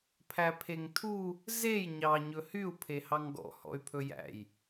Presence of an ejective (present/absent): absent